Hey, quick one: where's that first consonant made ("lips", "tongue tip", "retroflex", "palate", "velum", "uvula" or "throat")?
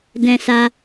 tongue tip